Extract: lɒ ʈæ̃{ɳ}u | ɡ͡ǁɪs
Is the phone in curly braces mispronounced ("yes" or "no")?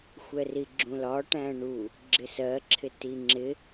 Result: no